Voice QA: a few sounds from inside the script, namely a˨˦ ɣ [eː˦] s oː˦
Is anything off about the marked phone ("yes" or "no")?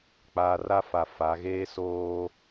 no